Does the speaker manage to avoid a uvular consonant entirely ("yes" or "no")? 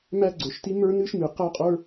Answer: no